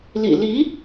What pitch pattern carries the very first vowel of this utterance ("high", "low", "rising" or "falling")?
low